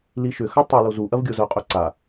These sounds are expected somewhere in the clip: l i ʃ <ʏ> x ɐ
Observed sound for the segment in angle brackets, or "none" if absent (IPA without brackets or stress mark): ʏ